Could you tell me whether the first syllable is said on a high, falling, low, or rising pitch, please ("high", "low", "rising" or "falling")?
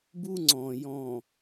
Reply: high